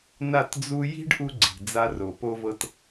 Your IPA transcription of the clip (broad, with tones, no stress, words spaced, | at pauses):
na˦˨td͡zu˦ ji̤˦ɖ ʔu˦ɡ͡ǀi̤˨ d͡za˦ro˨ po˦vɤ˦t